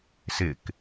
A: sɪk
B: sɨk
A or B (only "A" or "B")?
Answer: A